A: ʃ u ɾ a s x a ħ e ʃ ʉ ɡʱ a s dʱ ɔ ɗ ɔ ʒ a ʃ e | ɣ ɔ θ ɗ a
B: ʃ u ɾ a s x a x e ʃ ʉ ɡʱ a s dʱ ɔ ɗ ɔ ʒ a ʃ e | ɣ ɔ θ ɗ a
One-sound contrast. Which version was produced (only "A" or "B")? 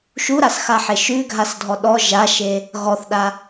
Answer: A